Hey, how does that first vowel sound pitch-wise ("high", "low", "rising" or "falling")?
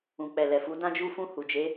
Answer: low